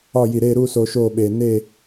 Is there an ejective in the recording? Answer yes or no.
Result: no